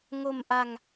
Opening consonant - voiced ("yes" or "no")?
yes